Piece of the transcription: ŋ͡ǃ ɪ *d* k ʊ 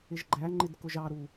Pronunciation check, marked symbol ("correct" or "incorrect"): correct